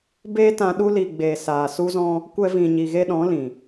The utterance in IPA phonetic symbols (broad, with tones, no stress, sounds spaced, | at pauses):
b eː˦ t ã˧ ɗ u˧ l i˨ ɡ͡b eː˨ s aː˨ s u˦ z ɔ̃˦ | kʷ ɛ˧ v ĩ˨ ɲ i˨ ɣ e˧ ɗ ɔ̃˨˦ l ĩ˨